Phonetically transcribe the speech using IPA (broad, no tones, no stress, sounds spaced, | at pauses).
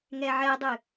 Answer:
ŋ ɛ ʕ ɛ dˤ ɨ